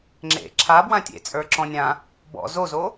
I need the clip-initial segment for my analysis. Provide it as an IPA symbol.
ŋ͡ǁ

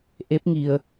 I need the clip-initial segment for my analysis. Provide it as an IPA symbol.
ʔ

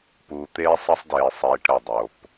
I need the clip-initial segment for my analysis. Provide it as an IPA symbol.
p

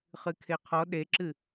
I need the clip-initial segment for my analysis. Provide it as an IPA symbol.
χ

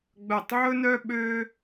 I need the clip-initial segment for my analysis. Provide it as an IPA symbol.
ɡ͡b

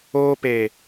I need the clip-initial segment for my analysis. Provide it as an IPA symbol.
oː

